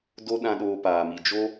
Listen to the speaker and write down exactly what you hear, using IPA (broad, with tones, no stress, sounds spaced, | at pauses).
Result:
d o˦ ɗ ã˧ ɗ oː˧ p aː˨ m i˨ d͡ʒ o˧